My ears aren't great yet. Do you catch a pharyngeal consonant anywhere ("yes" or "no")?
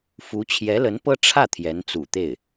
no